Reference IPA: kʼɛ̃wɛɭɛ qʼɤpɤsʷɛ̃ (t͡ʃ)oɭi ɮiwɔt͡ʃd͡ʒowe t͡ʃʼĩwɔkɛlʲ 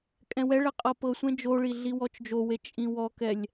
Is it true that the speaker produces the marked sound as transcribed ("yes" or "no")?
no